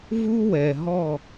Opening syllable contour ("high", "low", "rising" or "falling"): high